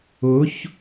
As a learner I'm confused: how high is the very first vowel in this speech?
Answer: high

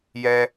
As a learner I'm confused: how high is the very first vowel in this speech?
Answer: mid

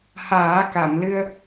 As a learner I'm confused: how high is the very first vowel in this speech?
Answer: low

